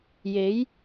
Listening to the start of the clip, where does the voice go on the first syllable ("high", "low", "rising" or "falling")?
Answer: rising